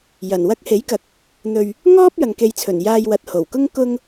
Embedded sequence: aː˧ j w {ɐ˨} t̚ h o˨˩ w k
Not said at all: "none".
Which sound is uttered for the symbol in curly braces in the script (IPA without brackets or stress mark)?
ɐ˨